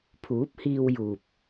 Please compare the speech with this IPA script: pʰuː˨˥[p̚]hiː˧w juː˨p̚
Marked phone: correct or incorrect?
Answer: correct